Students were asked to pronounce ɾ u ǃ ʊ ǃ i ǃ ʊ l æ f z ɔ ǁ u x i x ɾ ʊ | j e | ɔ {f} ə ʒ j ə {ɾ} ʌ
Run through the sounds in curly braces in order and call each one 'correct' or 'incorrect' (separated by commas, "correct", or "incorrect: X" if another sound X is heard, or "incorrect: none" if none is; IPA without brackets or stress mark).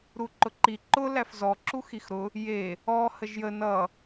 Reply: incorrect: h, incorrect: n